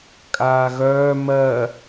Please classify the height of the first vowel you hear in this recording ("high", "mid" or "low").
low